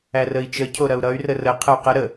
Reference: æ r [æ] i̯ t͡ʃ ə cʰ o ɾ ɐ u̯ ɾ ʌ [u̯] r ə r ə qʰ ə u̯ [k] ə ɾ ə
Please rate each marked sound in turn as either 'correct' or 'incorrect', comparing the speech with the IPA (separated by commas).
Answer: incorrect, incorrect, incorrect